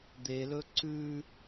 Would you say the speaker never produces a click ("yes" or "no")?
no